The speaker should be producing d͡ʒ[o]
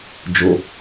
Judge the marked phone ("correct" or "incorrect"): correct